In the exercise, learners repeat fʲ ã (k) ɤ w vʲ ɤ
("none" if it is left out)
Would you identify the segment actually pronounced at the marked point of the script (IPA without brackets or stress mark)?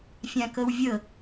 k